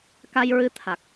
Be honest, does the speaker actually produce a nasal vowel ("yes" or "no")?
no